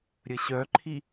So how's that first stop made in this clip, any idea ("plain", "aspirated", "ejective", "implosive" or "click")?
click